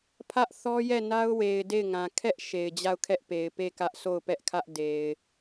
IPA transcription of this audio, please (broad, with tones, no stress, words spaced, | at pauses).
pʰä˦ʔ θɔ˦jɛ˦˨na˦ʊ̯we˨ɪ̯ de˦˨ɪ̯ŋã˨ kʰɛ˦ʔ ʃe˨ɪ̯d͡ʑa˦˨ʊ̯kʰɛ˦ʔpe˨ɪ̯ pe˦˨kä˦ʔ so˦˨ʊ̯pɛ˦ʔkʰä˦ʔ de˨ɪ̯